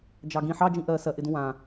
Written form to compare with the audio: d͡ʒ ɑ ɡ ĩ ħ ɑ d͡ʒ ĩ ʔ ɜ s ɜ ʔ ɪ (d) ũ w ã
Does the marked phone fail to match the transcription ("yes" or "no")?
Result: no